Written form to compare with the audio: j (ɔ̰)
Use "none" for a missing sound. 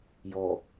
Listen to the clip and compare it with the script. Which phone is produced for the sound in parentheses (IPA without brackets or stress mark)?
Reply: ɔ